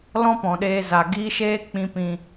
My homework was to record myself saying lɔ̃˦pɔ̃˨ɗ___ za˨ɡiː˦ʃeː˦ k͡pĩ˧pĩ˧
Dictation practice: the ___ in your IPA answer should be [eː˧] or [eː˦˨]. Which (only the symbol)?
eː˧